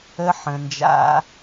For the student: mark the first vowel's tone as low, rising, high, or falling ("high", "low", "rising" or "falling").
high